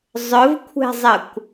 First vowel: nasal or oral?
oral